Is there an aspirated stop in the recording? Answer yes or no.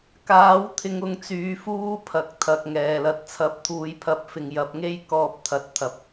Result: yes